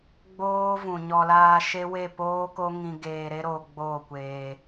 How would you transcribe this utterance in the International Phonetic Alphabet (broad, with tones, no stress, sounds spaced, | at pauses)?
ɡ͡b oː˦ v ũ˨ ɲ ɔ˧ l aː˦ ʃ e˦ w e˦˨ p oː˦ k o˦ ŋ ĩ˧ ɡ eː˧ ɾ e˦ ɾ o˧ ɡ͡b oː˦˨ kʷ eː˧